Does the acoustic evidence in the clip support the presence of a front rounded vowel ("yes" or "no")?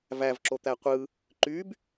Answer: yes